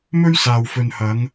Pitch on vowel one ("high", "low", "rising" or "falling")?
high